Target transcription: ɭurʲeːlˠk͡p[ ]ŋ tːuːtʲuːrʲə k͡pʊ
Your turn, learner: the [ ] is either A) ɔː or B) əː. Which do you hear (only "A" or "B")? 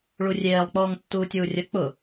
A